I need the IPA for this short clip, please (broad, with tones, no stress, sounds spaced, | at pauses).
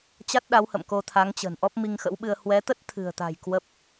t͡ɕ a˦˥ t̚ ɗ a˨˦ w h ə̰˧˨ m k o˧ t̪ʰ a˨˦ ŋ t͡ɕ ə̤˨˩ n ʔ ɔ˦˥ p̚ m i˧ ŋ x ə̰˧˥ w ɓ ɨ˧ ə̯ h w ɛ˨˦ t̪ ə˦˥ t̚ t̪ʰ ɨ̤˨˩ ə̯ t̪ a̤˨˩ j k w ə˦˥ p̚